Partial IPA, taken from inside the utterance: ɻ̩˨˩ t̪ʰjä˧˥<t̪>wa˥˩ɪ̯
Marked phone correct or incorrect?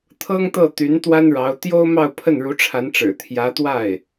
correct